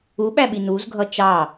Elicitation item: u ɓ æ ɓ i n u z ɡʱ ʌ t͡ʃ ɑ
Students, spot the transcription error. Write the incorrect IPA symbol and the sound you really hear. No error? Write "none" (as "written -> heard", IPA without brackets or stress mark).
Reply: none